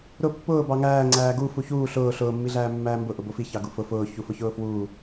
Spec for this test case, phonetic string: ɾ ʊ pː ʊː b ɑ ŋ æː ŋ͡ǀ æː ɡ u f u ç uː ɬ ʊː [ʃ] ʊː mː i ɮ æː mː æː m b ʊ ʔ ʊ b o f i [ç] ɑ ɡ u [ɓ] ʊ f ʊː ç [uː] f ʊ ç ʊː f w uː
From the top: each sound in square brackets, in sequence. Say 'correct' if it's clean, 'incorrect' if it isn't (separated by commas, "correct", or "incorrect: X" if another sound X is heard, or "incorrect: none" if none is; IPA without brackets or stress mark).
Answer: incorrect: ɬ, correct, incorrect: f, incorrect: u